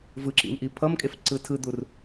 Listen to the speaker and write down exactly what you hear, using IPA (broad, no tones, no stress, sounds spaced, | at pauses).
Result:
v ɯ ǁ ḭ m ʔ i pʰ ʌ m kʼ e f ǀ ɯ tʰ ɯ d̪ u r